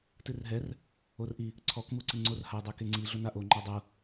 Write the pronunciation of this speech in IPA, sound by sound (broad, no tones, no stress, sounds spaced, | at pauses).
t ɨ r ɦ ɛ r | o r ʔ i | ǀʰ ɔ k m u ǀ ɨ ŋ͡ǀ o r h a dˤ ɛ k e ŋ͡ǀ i ɮ o n a ʔ o ŋ͡ǃ a dˤ u